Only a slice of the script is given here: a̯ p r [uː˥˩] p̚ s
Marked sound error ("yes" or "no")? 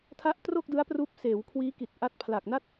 yes